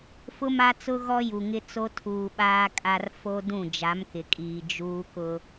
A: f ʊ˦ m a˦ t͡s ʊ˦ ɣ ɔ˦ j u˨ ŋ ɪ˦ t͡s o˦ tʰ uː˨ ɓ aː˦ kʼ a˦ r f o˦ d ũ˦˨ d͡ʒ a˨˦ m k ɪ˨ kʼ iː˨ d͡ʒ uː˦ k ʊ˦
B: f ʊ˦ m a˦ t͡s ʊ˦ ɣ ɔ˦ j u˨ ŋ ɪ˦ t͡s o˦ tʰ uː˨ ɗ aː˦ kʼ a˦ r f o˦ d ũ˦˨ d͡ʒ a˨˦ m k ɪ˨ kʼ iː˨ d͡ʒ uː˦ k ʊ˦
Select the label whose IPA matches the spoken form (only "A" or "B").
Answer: A